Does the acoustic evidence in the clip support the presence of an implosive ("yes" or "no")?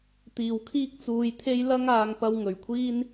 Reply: no